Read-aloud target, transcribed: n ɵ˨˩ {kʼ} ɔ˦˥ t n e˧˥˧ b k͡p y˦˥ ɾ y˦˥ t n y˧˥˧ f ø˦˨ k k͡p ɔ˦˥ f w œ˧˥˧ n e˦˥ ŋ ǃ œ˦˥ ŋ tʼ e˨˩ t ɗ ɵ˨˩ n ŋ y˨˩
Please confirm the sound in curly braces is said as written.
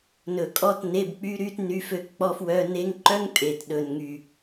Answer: yes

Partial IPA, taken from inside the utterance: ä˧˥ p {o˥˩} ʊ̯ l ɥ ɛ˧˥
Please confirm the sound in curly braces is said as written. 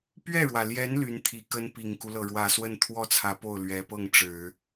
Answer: yes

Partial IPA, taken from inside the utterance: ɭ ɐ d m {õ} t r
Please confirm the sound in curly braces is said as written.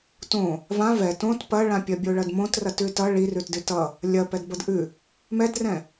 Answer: yes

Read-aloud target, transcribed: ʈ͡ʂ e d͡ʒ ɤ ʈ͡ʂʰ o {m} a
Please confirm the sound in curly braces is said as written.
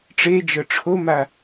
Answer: yes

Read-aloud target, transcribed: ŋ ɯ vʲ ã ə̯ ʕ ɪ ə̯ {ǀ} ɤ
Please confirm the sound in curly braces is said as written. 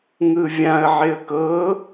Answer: no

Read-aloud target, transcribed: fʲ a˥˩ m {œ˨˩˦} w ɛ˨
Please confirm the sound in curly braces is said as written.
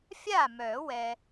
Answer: yes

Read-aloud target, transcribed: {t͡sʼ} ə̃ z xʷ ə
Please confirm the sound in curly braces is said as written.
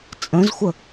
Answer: yes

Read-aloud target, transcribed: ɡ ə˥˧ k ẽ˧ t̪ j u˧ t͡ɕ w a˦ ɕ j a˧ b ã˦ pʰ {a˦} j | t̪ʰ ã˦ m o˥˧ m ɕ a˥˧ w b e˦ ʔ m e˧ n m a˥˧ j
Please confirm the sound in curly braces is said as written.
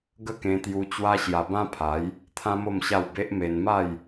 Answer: no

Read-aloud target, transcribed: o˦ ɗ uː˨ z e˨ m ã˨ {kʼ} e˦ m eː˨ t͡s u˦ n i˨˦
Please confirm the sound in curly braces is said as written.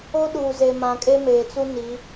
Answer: yes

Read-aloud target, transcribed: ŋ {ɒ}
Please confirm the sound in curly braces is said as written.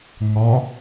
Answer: yes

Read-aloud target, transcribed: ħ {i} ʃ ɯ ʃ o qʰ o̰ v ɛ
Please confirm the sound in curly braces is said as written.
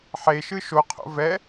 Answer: no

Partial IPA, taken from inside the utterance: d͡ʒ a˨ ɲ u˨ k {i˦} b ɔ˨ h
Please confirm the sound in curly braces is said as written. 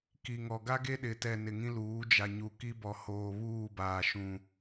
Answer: yes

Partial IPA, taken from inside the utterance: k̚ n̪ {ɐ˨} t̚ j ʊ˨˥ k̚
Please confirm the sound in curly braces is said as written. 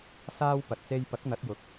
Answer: no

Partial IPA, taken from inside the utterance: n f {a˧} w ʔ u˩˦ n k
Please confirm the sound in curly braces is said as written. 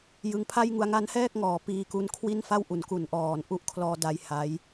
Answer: no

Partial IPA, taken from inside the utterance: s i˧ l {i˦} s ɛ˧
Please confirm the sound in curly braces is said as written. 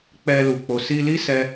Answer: yes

